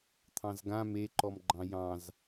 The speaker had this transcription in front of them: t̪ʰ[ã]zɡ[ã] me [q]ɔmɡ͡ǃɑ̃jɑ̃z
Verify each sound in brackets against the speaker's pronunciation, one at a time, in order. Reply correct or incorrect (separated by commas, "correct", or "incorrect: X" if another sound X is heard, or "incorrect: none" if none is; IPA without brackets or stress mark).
incorrect: ɑ̃, correct, incorrect: ǃ